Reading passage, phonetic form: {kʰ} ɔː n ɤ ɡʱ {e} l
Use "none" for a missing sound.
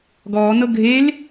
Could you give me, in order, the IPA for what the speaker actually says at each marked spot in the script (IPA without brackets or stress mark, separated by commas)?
ɡ, e